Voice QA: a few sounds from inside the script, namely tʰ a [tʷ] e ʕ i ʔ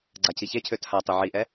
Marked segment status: incorrect: tˤ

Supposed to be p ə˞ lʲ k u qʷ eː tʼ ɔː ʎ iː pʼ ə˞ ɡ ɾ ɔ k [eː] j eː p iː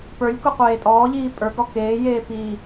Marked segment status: correct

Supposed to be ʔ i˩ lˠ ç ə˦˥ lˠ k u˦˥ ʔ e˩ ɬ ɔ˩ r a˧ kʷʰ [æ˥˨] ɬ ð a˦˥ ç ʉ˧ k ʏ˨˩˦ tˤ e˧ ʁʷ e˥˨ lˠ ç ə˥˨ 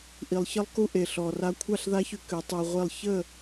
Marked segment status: incorrect: a˥˨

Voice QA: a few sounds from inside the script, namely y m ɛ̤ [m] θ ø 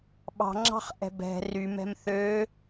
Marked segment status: correct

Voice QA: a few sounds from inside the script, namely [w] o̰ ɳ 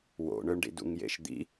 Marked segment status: correct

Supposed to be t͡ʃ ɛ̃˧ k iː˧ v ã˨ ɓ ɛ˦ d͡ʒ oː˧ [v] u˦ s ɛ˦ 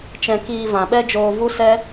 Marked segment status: correct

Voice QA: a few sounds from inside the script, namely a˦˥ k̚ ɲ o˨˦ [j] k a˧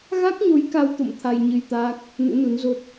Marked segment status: correct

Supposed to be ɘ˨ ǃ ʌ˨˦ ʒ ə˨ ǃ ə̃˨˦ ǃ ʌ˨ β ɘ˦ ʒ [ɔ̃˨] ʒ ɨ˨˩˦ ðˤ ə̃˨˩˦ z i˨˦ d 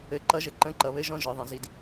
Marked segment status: incorrect: ɔ̃˦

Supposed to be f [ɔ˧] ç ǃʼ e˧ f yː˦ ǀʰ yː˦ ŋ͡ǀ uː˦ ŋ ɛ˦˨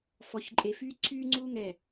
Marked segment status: correct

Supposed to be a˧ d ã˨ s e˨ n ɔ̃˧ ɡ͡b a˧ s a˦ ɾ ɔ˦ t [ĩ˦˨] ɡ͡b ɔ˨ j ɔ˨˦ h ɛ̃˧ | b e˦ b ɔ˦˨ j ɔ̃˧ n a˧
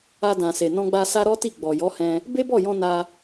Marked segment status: incorrect: i˦˨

